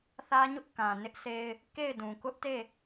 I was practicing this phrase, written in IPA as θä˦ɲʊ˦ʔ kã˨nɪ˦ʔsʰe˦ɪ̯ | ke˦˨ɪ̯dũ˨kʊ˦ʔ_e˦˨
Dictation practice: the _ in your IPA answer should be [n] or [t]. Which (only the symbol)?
t